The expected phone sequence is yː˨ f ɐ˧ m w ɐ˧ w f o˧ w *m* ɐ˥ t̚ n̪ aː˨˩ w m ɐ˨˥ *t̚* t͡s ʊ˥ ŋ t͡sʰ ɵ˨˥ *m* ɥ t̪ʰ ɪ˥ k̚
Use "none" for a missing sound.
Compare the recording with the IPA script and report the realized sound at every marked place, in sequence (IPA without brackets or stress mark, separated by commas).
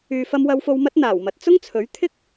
m, t̚, none